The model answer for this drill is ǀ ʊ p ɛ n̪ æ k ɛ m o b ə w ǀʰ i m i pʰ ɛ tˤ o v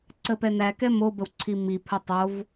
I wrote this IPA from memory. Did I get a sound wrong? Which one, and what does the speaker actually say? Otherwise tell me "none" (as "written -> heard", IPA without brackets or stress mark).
ʊ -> ə